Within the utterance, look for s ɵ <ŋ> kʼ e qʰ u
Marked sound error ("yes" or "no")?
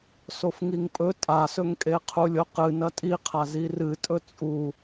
no